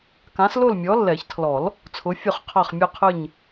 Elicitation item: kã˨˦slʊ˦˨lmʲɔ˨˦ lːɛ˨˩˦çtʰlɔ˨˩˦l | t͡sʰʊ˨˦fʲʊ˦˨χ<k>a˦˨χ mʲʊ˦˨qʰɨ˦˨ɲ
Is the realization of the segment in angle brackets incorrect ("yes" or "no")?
yes